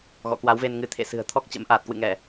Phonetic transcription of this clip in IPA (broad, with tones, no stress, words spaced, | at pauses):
ɣɔ̰˧˨kwa˨˦wve˧nŋɨ˨˦ t̪ʰḛ˧˨sɨ̤˨˩ə̯ t̪ʰɔ˦˥k̚t͡ɕə̰˧˥m ʔaː˨˩t̚kwɨ̰˧˨ ŋɛ˧˩˨